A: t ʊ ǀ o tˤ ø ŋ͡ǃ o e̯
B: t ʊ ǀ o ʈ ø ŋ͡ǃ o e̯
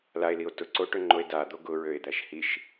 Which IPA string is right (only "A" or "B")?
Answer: B